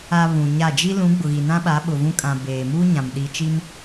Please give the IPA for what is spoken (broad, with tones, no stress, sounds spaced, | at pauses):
a˨ β ũ˨ ɲ a˦˨ d͡ʒ i˦ l ũ˨˦ ɡ͡b ʊ˨ ɣ i˨ n ã˦ ɓ a˨˦ ɓ ʊ˨ v ũ˦ kʼ ã˨ b eː˨ m uː˦ ɲ ã˨ m ɗ i˨ t͡ʃ i˦ m